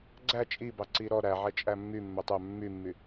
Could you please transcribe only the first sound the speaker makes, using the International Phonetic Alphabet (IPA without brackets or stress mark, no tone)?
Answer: ɡ͡ǀ